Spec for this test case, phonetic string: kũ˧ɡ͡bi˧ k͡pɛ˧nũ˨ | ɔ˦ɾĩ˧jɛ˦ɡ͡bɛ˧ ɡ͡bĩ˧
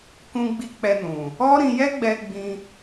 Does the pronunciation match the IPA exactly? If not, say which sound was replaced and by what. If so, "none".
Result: none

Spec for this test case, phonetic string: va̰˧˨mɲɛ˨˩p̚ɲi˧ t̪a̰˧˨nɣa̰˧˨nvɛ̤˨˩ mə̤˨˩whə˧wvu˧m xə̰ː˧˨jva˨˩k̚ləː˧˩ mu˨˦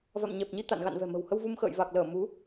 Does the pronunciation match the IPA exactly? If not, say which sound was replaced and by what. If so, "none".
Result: none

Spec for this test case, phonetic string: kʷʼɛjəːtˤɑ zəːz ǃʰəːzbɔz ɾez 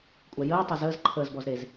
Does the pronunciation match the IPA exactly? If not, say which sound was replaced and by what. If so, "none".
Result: none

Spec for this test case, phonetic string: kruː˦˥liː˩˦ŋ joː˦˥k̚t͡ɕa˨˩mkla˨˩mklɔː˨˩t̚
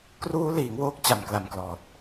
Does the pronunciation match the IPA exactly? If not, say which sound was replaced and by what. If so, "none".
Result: j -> w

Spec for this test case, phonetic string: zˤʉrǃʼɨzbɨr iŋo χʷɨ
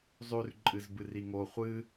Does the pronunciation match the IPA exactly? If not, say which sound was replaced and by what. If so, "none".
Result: none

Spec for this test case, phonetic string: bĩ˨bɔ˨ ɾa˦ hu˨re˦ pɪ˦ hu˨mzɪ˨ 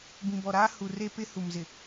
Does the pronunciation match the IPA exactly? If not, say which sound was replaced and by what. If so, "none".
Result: none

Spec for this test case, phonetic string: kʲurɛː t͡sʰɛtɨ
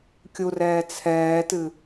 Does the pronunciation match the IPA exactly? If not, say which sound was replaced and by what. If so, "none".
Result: ɛ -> ɛː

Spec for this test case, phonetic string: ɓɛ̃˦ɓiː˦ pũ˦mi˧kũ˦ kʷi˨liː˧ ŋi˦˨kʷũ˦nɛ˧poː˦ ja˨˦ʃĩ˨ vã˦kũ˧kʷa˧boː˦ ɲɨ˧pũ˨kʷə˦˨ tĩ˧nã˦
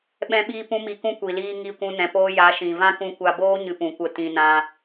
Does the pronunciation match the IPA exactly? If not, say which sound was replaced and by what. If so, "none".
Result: ɛ˧ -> ɛ̃˧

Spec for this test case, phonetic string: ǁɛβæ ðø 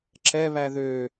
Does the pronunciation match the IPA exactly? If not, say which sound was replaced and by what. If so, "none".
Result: none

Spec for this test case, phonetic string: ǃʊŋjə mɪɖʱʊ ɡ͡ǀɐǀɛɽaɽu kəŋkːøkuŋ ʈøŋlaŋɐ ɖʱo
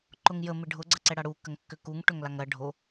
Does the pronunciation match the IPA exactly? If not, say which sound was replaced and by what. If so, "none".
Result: none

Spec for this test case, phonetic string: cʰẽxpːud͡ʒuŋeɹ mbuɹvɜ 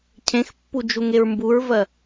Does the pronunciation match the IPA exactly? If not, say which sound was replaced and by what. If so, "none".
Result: none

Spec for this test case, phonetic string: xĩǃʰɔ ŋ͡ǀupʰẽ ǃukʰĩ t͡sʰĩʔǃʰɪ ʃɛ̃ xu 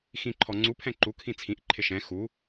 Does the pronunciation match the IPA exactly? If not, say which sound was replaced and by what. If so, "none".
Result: ẽ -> ɛ̃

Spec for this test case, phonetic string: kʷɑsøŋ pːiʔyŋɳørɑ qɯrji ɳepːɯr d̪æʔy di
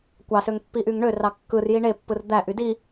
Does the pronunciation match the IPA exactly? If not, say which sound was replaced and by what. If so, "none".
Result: q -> kː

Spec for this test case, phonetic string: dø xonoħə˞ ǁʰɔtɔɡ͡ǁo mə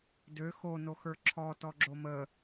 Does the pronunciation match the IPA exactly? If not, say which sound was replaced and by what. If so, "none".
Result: ħ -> x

